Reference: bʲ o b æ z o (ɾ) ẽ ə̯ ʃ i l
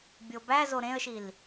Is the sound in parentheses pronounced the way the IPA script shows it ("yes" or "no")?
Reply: yes